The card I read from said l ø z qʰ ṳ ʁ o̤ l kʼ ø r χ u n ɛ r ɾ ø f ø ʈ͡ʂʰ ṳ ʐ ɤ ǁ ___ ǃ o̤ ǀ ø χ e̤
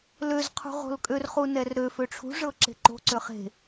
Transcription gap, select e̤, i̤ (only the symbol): e̤